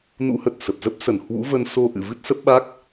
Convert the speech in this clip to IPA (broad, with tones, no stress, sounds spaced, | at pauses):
n ṵ˧˥ h ə˨˩ t̚ s ə˨˩ p̚ z ə˦˥ p̚ s ə˨˩ n h w ṵ˧˥ v ə˧ n s o˧ ʔ ɨ̰˧˨ v ɨ˦˥ t̚ s ə˦˥ p̚ ɓ a˦˥ k̚